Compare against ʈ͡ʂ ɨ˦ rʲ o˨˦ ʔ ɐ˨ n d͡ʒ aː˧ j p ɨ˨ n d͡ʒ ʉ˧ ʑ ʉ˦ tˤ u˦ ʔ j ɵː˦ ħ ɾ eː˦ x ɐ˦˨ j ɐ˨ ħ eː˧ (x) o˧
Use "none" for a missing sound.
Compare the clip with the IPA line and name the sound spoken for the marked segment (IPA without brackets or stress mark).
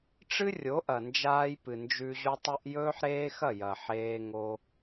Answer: ŋ